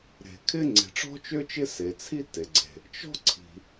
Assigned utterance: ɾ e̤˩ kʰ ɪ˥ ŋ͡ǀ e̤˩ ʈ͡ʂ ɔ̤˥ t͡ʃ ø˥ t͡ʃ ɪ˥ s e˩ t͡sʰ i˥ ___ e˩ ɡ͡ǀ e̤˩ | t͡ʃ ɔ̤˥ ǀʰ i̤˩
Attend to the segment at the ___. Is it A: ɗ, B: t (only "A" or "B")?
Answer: B